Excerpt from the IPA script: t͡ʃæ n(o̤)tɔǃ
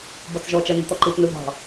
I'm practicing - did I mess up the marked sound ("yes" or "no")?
yes